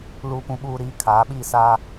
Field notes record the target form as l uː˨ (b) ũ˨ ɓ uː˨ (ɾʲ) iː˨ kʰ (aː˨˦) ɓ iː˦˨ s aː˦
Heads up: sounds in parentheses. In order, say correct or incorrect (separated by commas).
incorrect, incorrect, correct